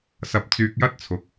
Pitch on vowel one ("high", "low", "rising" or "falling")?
low